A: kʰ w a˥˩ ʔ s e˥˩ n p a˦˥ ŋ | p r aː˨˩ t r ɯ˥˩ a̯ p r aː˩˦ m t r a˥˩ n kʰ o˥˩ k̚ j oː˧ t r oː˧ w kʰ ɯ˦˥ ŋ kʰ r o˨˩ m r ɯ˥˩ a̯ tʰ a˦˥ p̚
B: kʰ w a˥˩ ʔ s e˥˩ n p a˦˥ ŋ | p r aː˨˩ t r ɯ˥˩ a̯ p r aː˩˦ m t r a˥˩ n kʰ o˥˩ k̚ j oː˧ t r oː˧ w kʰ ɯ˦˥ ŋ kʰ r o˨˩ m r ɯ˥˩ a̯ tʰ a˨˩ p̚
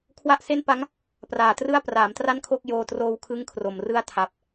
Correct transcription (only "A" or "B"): B